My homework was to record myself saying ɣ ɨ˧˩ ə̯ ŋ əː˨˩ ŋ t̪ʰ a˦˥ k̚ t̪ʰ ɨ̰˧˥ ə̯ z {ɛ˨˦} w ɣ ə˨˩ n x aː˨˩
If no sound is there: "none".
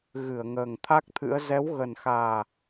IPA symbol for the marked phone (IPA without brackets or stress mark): ɛ˨˦